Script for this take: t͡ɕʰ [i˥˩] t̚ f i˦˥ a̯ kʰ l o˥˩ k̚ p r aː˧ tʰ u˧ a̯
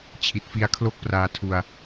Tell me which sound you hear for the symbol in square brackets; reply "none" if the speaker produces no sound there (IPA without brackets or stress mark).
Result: i˨˩